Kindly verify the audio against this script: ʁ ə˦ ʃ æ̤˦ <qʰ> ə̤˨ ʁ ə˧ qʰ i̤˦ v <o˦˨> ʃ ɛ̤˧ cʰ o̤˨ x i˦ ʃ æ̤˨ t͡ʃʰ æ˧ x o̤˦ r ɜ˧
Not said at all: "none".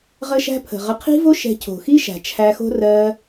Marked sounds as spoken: pʰ, o˦

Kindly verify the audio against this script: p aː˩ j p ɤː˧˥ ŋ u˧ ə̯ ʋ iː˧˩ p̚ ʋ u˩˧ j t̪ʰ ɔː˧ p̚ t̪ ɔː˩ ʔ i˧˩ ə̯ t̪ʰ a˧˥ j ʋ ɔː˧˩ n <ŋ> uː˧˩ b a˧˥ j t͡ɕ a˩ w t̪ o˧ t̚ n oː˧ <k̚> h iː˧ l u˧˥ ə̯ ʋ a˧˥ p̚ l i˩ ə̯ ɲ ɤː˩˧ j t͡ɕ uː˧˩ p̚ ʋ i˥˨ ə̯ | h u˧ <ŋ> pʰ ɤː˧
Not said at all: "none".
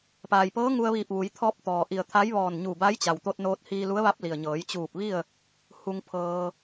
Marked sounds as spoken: ɲ, t̚, ŋ

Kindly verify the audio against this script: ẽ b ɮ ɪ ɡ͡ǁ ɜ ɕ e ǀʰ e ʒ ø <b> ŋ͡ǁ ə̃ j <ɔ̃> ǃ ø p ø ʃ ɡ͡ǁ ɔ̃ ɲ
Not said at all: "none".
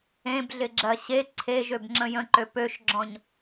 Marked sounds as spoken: b, ə̃

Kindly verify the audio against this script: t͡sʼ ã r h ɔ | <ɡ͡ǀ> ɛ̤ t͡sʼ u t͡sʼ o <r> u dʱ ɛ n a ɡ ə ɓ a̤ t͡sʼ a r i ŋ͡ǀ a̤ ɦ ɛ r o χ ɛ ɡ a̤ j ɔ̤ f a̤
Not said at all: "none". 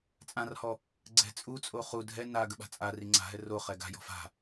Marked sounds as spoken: ɡ͡ǀ, χ

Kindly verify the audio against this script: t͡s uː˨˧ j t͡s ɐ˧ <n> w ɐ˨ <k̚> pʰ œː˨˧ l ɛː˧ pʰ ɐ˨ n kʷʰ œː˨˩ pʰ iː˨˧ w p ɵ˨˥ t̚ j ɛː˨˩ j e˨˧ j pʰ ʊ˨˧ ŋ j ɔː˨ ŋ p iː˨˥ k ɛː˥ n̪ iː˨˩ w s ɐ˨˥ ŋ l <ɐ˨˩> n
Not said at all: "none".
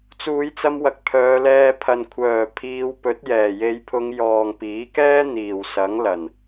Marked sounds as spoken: m, k̚, ɐ˨˩

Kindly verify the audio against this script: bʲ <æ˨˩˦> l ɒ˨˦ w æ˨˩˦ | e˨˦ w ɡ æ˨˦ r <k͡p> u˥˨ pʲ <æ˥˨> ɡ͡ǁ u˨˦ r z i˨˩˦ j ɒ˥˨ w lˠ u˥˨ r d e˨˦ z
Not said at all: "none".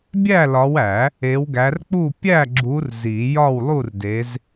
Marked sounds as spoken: æ˥˨, k͡p, æ˥˨

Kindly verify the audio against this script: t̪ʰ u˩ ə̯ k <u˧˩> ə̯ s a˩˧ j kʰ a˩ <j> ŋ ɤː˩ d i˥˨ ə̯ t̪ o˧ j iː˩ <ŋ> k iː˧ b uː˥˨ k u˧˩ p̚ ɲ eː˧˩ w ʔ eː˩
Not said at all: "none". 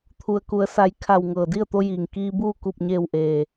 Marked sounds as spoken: u˩, w, ŋ

